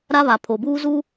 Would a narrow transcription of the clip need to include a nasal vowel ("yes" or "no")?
no